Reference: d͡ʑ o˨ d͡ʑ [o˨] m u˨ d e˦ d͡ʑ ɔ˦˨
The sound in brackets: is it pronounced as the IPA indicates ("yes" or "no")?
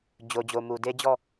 yes